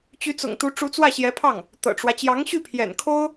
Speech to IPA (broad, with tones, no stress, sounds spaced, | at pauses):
t͡ɕ y˧˥ t͡s ʊ̰˨˩ ŋ t̪ u˧˥ ʈ͡ʂ u˧˥ t͡s w ä˥˩ ɕ j ɛ˧˥ pʰ ɑ˥˩ ŋ | t̪ ɤ̰˨˩ ʈ͡ʂ w ä˦ t͡ɕ j ɑ˧˥ ŋ ɕ y˥˩ pʰ j ɛ̰˨˩ n kʰ o˥ ʊ̯